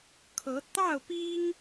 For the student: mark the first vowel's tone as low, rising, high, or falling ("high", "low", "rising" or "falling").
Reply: rising